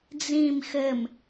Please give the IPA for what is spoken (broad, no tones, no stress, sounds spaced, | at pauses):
d͡z ĩ m x ɘ m